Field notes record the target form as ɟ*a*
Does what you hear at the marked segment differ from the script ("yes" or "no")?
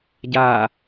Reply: no